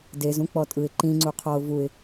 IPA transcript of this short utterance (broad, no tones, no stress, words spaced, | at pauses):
dezũ k͡pɔtʼɯɪ̯ ǃĩŋ͡ǀu qʰɔʊ̯ vuɪ̯